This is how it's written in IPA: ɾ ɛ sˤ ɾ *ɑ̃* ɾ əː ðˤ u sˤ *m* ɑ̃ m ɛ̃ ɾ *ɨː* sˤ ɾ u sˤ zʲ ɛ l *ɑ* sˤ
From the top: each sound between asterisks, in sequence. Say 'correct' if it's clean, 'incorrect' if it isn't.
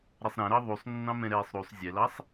incorrect: ã, incorrect: nː, incorrect: ɛː, correct

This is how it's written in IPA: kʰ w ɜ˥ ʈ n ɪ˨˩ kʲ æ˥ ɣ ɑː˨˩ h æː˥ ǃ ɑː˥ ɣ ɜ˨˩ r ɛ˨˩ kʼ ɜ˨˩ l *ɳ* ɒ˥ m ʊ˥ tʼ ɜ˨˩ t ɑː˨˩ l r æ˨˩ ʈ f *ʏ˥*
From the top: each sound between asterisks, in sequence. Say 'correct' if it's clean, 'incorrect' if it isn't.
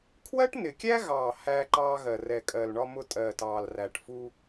correct, incorrect: u˥

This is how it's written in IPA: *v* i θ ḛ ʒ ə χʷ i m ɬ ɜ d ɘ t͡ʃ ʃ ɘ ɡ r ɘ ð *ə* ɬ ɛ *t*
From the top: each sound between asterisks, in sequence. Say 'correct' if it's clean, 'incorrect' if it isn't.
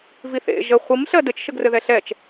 correct, incorrect: ɛ, incorrect: t͡ʃ

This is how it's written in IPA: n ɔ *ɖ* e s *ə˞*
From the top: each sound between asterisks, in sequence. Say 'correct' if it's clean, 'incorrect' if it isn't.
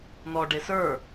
correct, correct

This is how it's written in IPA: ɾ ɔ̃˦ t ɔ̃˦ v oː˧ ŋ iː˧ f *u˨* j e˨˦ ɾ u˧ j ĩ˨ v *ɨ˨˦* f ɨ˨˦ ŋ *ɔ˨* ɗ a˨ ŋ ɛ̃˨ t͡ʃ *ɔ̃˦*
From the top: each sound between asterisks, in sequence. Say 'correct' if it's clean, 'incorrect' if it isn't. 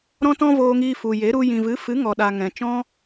correct, correct, correct, correct

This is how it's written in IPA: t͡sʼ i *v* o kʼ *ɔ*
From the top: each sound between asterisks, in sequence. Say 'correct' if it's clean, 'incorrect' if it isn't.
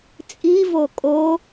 correct, incorrect: o

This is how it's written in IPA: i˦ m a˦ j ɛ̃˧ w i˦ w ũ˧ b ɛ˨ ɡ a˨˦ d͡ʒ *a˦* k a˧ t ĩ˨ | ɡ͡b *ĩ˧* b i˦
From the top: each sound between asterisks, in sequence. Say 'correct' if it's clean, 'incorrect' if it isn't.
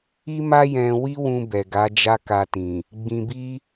correct, correct

